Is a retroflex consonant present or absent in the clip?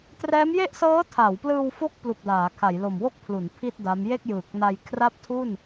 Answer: absent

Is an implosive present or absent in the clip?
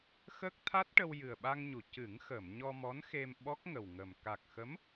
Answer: present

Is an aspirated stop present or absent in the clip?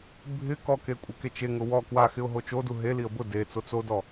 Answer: absent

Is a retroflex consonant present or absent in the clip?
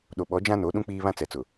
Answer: absent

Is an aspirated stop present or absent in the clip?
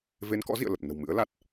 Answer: absent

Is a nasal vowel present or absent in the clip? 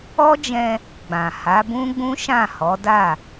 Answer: present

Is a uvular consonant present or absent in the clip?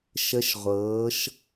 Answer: present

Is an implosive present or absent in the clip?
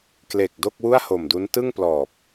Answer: absent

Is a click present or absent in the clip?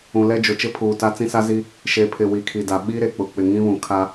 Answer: absent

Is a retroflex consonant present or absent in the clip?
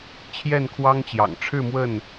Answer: present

